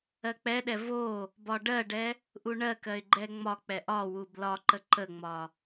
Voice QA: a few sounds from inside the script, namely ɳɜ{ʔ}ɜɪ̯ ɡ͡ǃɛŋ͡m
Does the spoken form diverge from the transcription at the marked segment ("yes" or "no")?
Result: yes